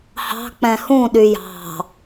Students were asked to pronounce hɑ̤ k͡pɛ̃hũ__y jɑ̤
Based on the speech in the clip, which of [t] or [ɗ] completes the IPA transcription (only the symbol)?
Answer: ɗ